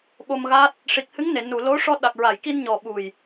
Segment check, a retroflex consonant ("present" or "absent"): present